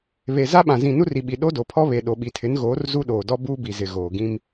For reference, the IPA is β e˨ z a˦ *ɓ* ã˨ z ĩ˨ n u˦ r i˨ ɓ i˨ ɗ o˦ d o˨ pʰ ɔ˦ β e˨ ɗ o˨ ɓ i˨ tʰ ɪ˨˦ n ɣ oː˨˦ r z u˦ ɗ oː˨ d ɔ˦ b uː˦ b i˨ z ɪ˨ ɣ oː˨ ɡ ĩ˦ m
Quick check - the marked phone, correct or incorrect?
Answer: correct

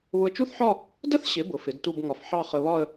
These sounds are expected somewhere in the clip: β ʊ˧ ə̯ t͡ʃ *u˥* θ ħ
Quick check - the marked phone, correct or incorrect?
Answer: correct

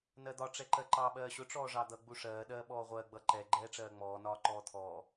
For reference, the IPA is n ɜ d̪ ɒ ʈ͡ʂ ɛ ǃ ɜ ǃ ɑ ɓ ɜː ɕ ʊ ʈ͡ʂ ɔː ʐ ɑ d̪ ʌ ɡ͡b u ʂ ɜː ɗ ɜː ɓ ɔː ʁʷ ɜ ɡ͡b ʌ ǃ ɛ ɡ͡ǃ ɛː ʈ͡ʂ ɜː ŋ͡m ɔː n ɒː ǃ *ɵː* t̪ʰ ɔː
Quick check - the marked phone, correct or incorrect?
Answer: incorrect: ɔː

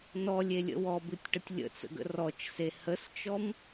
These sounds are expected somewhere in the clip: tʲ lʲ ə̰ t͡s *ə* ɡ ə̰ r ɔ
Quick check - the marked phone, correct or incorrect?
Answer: incorrect: ə̰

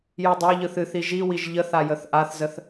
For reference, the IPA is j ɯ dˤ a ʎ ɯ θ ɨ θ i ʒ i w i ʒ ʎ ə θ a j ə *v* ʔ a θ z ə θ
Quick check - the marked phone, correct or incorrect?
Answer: incorrect: θ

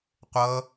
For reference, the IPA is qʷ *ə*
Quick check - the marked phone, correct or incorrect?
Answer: incorrect: ʌ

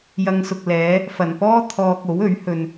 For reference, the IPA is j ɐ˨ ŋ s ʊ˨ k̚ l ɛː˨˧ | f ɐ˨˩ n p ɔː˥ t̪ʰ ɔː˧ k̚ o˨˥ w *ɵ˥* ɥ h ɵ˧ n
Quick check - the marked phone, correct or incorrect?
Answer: incorrect: ɵ˨˥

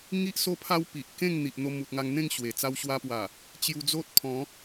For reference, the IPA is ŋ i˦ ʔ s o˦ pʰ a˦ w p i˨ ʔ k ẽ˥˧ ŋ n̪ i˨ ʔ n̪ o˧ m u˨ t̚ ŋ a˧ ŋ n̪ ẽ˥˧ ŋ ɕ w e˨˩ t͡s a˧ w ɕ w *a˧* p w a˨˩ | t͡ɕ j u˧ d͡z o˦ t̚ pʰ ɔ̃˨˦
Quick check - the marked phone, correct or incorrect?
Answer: correct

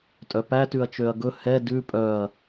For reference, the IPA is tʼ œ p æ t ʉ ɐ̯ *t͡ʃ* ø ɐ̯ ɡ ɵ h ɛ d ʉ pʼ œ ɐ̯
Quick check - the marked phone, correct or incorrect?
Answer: correct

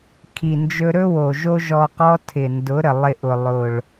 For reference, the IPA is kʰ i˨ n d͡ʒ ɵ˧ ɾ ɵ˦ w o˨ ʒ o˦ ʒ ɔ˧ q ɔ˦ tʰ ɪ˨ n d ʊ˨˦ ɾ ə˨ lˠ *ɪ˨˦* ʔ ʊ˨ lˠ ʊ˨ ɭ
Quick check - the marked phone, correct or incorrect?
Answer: incorrect: ɪ˧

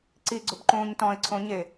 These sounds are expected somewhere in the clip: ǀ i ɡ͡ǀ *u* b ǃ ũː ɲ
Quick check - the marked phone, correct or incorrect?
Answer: incorrect: ʊ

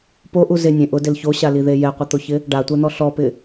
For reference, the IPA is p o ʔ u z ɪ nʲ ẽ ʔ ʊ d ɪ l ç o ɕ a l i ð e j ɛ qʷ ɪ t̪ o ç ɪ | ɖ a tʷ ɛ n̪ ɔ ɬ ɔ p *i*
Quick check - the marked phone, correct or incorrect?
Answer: incorrect: ɪ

